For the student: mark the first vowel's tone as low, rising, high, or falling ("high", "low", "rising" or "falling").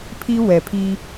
high